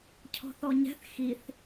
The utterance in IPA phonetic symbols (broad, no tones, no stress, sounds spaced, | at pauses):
cʰ ɔ̤ θ ɔ ɲ ɛ̤ θ x i θ